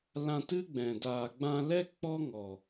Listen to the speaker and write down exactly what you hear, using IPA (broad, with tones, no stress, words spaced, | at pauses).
lã˧ tɨ˦ɡ͡bɛ̃˨ daː˨ɡ͡bã˧lɛ˦ k͡pɔ˦ŋɔ˨